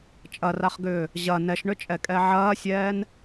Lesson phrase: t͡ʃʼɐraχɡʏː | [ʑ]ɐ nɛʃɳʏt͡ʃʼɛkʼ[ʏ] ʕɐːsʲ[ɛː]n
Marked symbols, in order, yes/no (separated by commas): yes, no, yes